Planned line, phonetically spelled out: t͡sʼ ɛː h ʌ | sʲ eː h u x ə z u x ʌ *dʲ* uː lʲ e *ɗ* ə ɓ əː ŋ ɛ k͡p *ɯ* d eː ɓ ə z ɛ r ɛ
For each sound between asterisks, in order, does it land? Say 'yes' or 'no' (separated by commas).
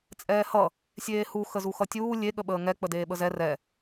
no, no, no